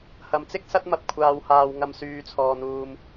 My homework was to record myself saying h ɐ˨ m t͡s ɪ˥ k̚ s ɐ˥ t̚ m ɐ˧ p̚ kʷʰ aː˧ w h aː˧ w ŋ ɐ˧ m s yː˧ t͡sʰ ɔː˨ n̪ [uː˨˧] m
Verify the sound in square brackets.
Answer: incorrect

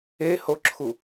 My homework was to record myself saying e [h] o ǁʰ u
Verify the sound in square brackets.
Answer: correct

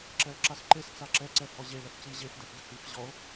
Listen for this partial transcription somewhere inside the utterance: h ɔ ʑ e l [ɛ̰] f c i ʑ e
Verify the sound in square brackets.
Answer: incorrect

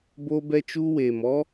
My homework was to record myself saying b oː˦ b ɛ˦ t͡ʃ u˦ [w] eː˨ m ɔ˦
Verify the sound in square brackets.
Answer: correct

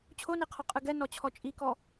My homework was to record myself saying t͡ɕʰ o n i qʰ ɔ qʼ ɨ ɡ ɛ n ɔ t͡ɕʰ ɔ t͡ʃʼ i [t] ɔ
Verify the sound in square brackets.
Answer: incorrect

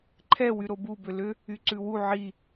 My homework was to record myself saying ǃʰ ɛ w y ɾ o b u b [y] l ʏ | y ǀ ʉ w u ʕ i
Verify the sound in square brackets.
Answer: incorrect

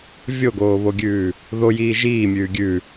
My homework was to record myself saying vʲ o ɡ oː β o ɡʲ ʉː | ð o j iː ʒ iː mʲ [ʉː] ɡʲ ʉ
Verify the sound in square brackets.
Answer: correct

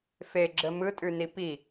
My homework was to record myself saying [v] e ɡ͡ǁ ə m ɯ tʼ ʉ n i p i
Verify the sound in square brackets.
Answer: incorrect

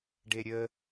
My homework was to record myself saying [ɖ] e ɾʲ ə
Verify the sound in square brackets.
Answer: correct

